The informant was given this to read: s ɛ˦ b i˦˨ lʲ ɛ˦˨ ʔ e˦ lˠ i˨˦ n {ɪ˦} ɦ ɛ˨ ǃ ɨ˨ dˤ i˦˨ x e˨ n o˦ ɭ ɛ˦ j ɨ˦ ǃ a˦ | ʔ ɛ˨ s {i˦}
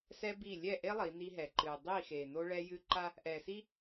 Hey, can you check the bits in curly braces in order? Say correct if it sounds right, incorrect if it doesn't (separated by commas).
incorrect, correct